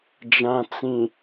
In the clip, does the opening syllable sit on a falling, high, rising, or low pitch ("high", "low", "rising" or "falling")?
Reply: low